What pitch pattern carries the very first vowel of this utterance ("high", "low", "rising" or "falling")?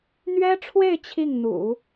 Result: high